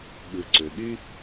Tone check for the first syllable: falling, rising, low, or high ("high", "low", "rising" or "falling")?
low